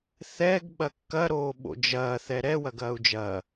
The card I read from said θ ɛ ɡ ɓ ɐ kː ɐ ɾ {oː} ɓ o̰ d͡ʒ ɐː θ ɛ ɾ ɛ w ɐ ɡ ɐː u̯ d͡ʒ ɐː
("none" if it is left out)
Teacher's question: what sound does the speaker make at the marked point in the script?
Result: oː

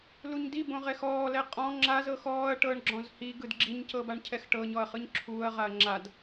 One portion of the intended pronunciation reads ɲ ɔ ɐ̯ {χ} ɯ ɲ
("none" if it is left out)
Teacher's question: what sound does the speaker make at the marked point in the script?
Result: χ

